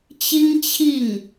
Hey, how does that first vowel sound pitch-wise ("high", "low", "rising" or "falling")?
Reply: high